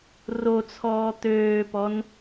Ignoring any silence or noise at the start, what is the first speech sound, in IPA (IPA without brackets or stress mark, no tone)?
r